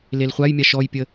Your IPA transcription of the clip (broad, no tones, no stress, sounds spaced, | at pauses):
l e l χʷ a j mʲ a ʃ ɔ j pʲ ə